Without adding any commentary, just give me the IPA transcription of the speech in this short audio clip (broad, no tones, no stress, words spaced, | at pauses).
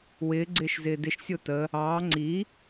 wɪː ɡ͡ǀɪːʃzɪːdɪʃ sʲotə | ɑː ŋ͡ǀi